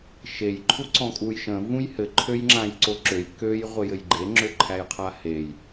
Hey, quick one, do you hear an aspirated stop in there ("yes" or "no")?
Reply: yes